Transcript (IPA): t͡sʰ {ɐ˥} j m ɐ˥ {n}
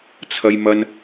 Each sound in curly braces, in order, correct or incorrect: correct, correct

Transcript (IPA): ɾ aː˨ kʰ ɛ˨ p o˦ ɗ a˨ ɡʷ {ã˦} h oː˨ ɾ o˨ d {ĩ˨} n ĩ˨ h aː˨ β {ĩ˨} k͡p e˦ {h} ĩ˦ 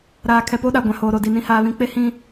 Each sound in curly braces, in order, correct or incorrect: incorrect, incorrect, correct, correct

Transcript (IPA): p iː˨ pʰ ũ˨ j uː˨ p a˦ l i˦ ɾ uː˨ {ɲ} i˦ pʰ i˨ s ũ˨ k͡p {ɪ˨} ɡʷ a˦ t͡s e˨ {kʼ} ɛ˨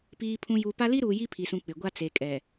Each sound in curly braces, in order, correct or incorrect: incorrect, correct, correct

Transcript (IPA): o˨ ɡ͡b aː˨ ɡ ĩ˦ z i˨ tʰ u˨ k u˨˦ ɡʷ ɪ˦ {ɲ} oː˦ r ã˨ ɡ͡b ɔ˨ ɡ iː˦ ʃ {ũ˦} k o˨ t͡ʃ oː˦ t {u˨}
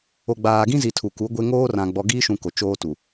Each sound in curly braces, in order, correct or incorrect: incorrect, incorrect, correct

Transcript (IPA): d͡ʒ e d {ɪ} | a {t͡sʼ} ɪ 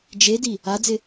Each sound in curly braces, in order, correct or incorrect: incorrect, incorrect

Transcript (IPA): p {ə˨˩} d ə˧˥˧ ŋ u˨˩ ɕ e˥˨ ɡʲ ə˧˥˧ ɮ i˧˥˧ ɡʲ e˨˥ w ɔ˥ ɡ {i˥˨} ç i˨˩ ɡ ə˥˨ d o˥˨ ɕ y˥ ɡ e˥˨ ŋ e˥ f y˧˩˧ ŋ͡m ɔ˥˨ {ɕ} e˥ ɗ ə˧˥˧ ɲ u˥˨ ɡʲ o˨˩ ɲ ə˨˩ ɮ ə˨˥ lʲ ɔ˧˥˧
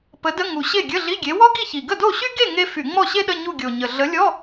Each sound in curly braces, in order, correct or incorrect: incorrect, correct, correct

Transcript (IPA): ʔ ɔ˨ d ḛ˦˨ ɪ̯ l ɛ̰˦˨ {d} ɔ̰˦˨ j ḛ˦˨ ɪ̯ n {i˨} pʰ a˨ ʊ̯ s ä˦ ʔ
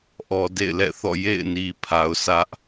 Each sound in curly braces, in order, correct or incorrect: incorrect, correct

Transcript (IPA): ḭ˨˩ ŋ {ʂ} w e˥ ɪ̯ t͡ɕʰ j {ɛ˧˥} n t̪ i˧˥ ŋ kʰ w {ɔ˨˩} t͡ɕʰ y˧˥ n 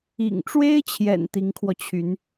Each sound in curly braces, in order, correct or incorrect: incorrect, incorrect, incorrect

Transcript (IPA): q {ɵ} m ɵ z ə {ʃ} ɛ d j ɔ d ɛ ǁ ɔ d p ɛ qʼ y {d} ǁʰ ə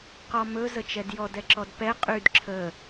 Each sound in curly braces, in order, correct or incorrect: incorrect, incorrect, correct

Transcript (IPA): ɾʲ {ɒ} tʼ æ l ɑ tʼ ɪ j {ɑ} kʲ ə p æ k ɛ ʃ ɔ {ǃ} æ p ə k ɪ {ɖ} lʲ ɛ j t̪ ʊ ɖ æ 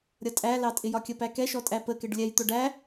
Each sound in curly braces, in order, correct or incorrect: incorrect, incorrect, incorrect, correct

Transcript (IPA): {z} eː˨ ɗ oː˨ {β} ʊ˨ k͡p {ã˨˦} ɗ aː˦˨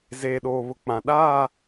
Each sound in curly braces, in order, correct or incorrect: correct, correct, correct

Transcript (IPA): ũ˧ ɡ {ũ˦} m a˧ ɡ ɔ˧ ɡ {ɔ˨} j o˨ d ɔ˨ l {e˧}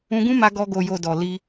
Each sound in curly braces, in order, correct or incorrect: correct, incorrect, incorrect

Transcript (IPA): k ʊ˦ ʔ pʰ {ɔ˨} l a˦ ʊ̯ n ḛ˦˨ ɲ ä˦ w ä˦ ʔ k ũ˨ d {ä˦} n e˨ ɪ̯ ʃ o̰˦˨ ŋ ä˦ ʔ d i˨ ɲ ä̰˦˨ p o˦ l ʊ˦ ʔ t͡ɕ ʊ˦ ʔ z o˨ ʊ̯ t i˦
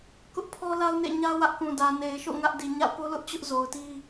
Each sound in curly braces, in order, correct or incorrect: incorrect, incorrect

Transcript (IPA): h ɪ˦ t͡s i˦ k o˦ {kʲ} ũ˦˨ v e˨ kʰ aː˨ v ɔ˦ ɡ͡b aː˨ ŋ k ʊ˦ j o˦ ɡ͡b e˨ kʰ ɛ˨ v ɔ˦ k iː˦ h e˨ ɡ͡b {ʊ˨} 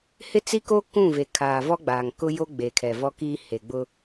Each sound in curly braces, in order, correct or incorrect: incorrect, incorrect

